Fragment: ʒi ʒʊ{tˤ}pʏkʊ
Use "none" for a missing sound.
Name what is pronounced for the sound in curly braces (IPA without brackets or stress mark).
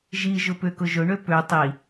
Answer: none